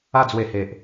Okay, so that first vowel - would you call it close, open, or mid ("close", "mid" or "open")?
open